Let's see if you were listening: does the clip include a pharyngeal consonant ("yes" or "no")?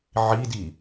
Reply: yes